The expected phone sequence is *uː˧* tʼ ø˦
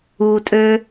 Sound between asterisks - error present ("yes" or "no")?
no